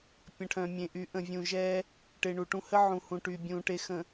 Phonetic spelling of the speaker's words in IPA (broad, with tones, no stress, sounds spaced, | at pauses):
pʲ ə̃˨ ʈʰ œ̃˨ mʲ ẽ˨ ʔ y˨˦ ʔ ə̃˨ vʲ ũ˨ ʒ ɛ˦ | ʈ e˨ ɳ u˨ ʈ ũ˦ h ə˦ ʕ ũ˨ h ũ˨ ʈ y˨ bʲ ũ˨ ʈ e˨ x ə̃˨